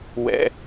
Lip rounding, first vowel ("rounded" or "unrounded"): unrounded